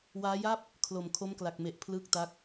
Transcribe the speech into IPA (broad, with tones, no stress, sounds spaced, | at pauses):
w aː˦˥ j a˥˩ p̚ | kʰ l o˨˩ m kʰ o˦˥ m k l a˨˩ k̚ m e˨˩ ʔ pʰ l ɯː˦˥ k̚ t a˦˥ k̚